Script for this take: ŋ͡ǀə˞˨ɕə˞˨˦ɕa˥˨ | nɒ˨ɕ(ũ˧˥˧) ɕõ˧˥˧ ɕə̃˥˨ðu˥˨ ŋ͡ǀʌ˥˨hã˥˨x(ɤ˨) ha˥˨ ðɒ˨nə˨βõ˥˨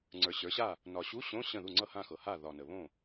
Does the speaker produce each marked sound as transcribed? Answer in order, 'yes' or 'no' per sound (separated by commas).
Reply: no, yes